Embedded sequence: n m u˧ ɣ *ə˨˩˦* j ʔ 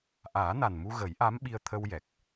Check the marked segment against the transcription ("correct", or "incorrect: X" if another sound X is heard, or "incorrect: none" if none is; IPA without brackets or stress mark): correct